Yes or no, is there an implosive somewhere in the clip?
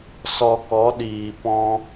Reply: yes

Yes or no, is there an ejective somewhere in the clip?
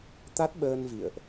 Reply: no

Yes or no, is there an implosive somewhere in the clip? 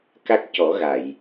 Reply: no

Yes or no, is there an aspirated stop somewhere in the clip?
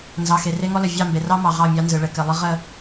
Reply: no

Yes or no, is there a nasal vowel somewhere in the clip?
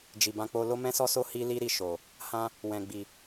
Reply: yes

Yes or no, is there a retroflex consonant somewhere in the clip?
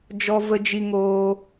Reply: no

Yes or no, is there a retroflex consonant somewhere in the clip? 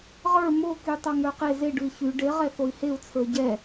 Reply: yes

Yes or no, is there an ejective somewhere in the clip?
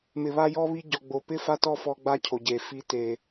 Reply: no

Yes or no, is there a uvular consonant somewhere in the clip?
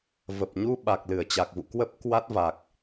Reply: no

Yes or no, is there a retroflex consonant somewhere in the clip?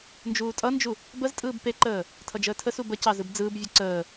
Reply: no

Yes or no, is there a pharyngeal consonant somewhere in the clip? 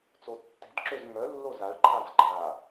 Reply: no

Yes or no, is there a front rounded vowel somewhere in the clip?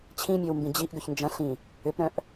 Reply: yes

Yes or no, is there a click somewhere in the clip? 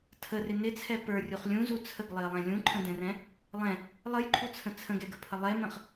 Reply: yes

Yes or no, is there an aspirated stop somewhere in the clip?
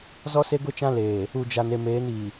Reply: no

